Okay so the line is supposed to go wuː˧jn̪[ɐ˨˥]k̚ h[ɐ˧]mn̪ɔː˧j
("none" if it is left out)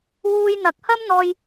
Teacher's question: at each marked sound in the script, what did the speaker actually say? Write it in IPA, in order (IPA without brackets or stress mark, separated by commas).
ɐ˨˥, ɐ˥